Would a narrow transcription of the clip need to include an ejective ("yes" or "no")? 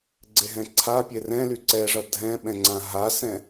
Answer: no